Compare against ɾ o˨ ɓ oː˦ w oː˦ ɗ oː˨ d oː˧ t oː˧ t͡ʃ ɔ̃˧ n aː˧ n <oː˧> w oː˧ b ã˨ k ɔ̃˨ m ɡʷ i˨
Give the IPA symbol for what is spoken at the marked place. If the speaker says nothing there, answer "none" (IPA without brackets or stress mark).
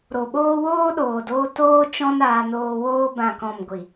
oː˧